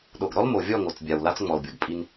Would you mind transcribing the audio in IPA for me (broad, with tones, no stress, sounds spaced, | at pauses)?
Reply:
ɗ o˨ ɡ ɾ ɔ˦ l m o˨ vʲ ɔ˦˨ ŋ o˨ t͡s bʲ a˨ w l a˦ t͡s ŋ͡m ɔ˨ l bʲ ɤ˨ ɡ pʼ i˦ n